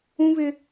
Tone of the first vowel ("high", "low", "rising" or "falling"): high